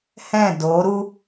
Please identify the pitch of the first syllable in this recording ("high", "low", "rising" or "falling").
falling